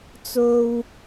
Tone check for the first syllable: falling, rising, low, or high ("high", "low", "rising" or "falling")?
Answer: high